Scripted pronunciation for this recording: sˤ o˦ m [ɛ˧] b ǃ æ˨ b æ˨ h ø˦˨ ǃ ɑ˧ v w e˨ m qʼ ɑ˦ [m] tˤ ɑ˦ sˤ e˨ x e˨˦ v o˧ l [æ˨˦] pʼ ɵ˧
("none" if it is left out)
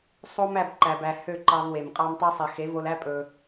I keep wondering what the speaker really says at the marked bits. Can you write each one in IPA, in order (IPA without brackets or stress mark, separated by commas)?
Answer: æ˧, m, æ˦